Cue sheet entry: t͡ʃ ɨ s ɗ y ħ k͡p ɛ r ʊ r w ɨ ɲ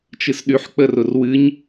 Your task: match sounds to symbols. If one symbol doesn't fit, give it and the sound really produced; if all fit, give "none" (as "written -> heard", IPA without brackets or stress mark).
ɛ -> ə